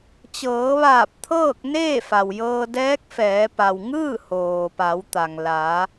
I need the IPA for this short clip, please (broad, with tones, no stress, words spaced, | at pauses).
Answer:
t͡ɕɤː˩˧ʋaː˧˩p̚ t̪ʰɤː˥˨k̚neː˥˨fa˩w jɤː˧ dɛː˧˥k̚fɛː˩˧pa˩w ŋɯː˥˨ hoː˩pa˩˧wt̪a˩ŋ laː˩˧